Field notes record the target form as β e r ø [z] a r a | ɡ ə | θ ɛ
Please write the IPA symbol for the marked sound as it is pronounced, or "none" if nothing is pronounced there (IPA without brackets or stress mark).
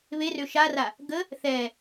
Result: ʃ